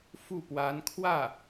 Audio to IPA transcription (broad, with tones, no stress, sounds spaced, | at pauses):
f u˥˩ p w a˧˥ n kʰ w ä˥˩